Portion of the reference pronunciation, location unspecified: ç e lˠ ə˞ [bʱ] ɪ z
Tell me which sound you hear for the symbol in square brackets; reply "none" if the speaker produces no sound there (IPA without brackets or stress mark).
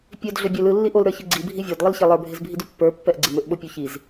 bʱ